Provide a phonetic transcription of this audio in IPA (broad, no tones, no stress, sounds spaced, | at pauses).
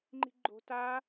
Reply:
ŋ͡ǃ i̤ ɡ͡ǃ o̤ t a